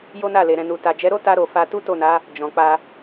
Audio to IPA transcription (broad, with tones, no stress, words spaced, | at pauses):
jo˦na˦˨le˨ ɾɛ̃˨nu˨ ta˨d͡ʒɛ˨˦ɾo˦ ta˧ɾo˨ fa˧ tu˦to˦˨na˨˦ | d͡ʒɔ̃˨k͡pa˧